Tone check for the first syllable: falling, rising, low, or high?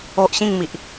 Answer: high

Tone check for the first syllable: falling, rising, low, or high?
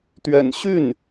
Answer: low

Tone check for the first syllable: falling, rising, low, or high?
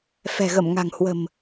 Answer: low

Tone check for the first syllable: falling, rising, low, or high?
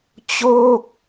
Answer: falling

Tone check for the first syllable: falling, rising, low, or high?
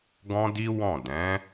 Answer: high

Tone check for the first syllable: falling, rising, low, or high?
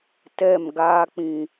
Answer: falling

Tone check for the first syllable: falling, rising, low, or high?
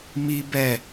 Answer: high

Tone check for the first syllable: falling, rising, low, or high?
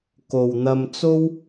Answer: low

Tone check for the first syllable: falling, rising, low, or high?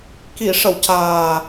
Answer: low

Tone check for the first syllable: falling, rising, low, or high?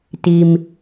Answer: low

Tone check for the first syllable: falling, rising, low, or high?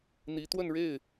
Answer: rising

